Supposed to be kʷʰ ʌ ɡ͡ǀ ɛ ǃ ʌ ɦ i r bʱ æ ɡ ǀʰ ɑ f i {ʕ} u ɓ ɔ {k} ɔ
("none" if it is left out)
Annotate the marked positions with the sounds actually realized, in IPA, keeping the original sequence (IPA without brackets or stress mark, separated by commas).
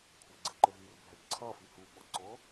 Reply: h, ǀ